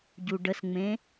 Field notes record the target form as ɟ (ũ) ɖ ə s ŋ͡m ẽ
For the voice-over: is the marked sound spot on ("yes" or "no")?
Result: no